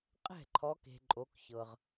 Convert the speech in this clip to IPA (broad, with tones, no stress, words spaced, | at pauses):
qʼɛ̤˥˩ǃʰɔ˨˦ke̤˨ ǃʼo˨˦kçɤ˨ʁ